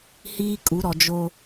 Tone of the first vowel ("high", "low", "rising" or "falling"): high